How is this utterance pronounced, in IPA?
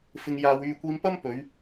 f ɪ˧ ŋ j aː˧ w yː˧ kʷ iː˧ m p ɐ˥ m p ɵ˨˧ ɥ

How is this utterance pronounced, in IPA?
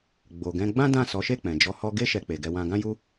ɡ͡b o˨ ɡ ɛ̃˧ ɡ͡b ã˦ d ã˦˨ s ɔ˨˦ ʃ e˦˨ k͡p ɛ̃˨ d͡ʒ ɔ˧ h ɔ˧ ɡ e˦ ʃ ɛ˧ k͡p e˨ ɡ ɛ˧ w ã˧ ɡ ã˦ j u˦

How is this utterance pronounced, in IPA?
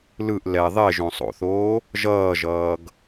l ɯ ʔ l ɛ ðˤ e ʒ õ sˤ o̰ θ oː | ʒ ʌː ʒ ʌː ɡ

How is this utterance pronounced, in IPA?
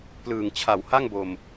p l ɯː˨˩ ŋ t͡ɕʰ a˨˩ w h a˥˩ ŋ b o˨˩ m

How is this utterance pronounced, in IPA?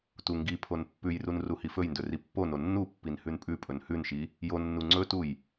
t u ŋ ɡ i pʰ o n pː ʉ j r u n r u h i f ɵ j n d ɵ r i pː o n o nː u pː i n h ʉ n pʼ ʉ pʼ ɵ n h ʉ n ʃ i | j o nː u ŋ͡ǀ ɵ t u j

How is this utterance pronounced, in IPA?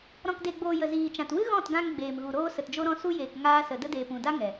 ɾ ɔ̃˨ k d e˨ ɡ͡b oː˨ j ə˨ z iː˨ t͡ʃ ã˨ t w ɨ˦ ɣ ɔ̃˦˨ t ɡ ã˧ ŋ ɡ͡b eː˨ m ɣ u˨ ɾ oː˧ s ə˨ t d͡ʒ o˧ ɾ ɔ̃˧ s u˧ j eː˨ k ŋ aː˧ s ə˨ d ə˧ d eː˨ p ũ˨ d a˦ ŋ ɛ˨

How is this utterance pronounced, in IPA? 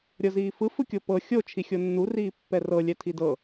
ɾʲ ɤ z iː f ɯ f ɯ kʲ o p ɤ xʲ o t͡ʃʰ i xʲ o nː u r iː pː ɛ r ɤ lʲ ɛ tʰ i d ɤ

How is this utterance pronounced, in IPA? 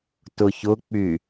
t ʊ ç ʊ k͡p y

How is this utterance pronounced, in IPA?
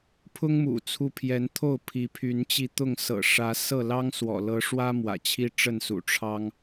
pʰ ʊ˦ ŋ m ṵ˨˩ t͡sʰ u˨˦ pʰ j ɛ˨˦ n t̪ʰ o˥˨ ʊ̯ pʰ i˨˦ pʰ y˨˦ n t͡ɕ i˧ t̪ ʊ˥˨ ŋ s ɤ̰˨˩ ʂ ä˨˦ s ɤ˥˨ l ɑ˦ ŋ s w ɔ̰˨˩ l ɤ˨˦ ʂ w ä˦ m w ä̰˨˩ t͡ɕʰ i˦ ʈ͡ʂ ə˥˨ n s ṵ˨˩ ʈ͡ʂʰ ɑ˦ ŋ

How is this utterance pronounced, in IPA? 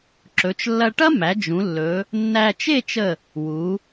ǁ ɵ˩˧ t͡ʃ lː ɐ˧ ʈ ɐ˥ m æ˩˧ d͡ʒ ũ˩˧ lː ɵ˩˧ | nː æ˧ t͡ʃ e˥˧ t͡ʃ ə˧˩ | w u˩˧

